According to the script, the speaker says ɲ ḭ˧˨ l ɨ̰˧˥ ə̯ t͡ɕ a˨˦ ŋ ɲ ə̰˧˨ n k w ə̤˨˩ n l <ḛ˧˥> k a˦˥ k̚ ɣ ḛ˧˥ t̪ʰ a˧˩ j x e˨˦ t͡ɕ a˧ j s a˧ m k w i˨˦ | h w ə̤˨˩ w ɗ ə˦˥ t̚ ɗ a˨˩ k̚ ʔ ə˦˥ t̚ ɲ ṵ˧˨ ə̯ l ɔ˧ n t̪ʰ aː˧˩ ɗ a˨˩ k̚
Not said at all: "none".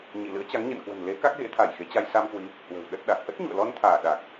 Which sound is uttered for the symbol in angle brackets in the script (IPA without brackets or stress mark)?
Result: e˨˦